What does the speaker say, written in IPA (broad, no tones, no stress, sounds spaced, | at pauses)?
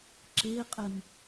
ǁ e qʼ ɘ m